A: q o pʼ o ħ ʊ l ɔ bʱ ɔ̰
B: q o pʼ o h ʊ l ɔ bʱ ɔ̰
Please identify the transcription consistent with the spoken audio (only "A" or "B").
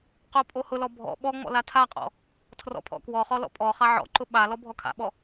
B